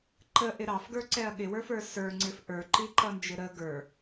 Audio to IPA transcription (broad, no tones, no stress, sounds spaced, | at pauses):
ǃ ə ʔ ɪ ɾ ɑ f ɡ ə˞ ǀ ɛ ɐ̯ ɠ ɪ w ə˞ f ə˞ s ə˞ ŋ͡ǀ ɪ f ʔ ə˞ ǃ i ǃ ʌ n d͡ʒ ɪ ɾ ə ɡ ə˞